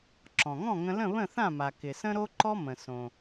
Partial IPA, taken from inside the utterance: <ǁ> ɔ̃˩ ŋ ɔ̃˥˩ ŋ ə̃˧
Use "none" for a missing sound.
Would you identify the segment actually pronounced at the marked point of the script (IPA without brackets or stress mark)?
ǁ